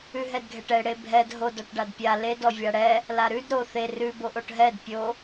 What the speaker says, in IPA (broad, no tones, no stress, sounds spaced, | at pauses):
ʉ ɦ ɛ d ɡʱ ɛ ʈ ɛ ɽ e bʱ ɛ d ɦ o d ɔ ʈ ɖ a d pʲ a l e d ɔ vʲ a ɽ ɛ | l a ɾ ʉ d ɾ o θ e r ʉ b o ʔ o ʈ ɦ ɛ d pʲ o